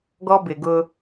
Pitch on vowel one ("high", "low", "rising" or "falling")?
high